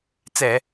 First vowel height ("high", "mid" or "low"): mid